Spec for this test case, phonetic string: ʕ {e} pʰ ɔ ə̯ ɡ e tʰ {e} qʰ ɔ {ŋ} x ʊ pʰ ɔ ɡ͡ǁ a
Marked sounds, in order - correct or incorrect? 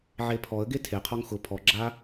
correct, correct, correct

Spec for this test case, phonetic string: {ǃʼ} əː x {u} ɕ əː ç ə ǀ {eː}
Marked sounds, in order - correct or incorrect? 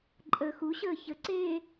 correct, correct, correct

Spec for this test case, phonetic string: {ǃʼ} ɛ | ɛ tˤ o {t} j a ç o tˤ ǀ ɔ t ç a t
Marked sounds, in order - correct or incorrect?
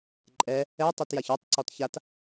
correct, correct

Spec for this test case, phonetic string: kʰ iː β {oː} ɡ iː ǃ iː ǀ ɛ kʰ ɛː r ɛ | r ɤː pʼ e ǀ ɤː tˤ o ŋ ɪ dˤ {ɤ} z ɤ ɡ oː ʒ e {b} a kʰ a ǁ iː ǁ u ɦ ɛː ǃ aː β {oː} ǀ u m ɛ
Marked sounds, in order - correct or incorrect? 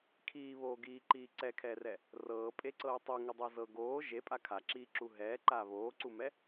correct, correct, incorrect: pʼ, correct

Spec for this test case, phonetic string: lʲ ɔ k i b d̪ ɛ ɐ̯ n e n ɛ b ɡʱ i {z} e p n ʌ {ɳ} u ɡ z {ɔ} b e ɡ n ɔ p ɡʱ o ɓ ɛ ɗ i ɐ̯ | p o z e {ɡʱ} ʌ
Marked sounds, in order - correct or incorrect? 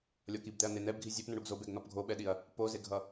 incorrect: zʲ, correct, incorrect: o, correct

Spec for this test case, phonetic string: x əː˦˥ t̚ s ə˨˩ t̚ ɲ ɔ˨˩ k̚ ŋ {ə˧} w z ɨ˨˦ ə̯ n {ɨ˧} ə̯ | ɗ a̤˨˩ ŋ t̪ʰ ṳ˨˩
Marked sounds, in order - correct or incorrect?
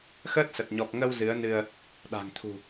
correct, correct

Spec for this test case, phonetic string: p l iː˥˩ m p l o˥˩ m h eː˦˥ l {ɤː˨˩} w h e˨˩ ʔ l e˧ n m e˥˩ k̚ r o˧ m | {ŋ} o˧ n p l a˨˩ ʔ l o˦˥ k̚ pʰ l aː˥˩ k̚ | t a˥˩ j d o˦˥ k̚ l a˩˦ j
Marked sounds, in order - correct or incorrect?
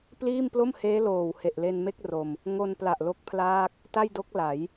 incorrect: oː˨˩, correct

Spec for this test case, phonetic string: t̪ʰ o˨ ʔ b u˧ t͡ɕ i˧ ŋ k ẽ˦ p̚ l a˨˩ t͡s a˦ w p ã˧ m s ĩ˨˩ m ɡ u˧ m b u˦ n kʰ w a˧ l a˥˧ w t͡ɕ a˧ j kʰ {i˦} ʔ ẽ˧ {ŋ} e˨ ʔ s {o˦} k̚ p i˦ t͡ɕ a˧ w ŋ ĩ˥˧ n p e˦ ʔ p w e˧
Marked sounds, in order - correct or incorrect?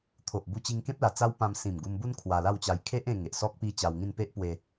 incorrect: e˦, correct, incorrect: ɔ˦

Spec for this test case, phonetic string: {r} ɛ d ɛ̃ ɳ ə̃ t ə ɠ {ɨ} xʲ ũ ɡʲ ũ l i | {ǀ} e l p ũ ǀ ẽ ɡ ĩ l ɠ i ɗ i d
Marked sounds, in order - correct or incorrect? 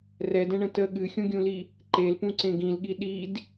correct, correct, incorrect: ǃ

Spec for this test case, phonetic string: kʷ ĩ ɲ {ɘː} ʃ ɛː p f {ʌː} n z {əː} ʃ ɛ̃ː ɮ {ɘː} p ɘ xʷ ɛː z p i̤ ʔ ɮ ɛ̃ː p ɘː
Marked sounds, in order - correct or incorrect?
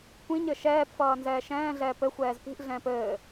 incorrect: ɘ, correct, incorrect: ɛː, incorrect: ɛː

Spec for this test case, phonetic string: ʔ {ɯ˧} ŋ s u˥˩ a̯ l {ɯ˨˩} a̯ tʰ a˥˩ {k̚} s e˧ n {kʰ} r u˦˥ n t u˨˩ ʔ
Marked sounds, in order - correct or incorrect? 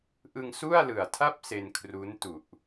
correct, correct, incorrect: p̚, correct

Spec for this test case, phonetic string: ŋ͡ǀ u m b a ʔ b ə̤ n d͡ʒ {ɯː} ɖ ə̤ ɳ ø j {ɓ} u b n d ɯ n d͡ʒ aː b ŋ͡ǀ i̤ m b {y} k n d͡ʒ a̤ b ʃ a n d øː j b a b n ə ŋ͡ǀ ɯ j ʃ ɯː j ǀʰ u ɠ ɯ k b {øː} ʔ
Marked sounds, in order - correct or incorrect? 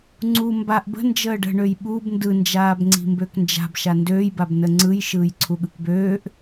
incorrect: əː, correct, incorrect: ø, correct

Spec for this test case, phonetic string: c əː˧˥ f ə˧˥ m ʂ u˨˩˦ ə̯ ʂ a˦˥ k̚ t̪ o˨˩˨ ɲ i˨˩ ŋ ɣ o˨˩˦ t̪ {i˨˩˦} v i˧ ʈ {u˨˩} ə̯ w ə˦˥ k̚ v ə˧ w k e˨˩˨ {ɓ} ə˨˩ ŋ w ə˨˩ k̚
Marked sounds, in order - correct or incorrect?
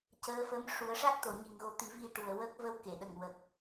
correct, correct, incorrect: ɗ

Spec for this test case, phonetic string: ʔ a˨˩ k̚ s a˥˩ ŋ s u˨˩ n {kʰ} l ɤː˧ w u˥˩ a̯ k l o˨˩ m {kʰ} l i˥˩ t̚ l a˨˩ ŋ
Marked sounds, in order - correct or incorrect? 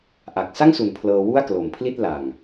incorrect: pʰ, incorrect: pʰ

